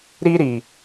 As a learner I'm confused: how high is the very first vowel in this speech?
high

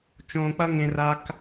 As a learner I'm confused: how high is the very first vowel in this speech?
mid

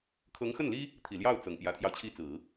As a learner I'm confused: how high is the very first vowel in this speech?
mid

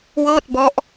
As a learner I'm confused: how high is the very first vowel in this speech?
mid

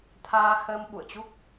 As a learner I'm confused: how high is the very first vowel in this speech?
low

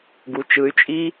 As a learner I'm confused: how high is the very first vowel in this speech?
high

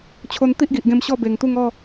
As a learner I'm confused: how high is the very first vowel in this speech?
mid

